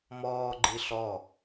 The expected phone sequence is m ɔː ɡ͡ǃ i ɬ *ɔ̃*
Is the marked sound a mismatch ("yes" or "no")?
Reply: yes